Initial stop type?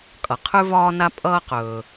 ejective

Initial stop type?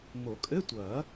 ejective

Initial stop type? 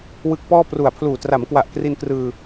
plain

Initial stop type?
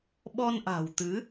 implosive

